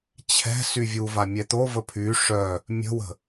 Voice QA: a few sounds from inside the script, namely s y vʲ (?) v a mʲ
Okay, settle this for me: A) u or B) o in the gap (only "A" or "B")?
A